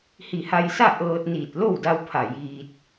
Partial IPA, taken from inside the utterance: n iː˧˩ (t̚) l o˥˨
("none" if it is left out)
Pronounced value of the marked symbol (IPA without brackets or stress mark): t̚